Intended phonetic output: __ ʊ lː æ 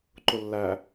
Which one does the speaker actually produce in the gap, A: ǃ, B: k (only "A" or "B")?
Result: A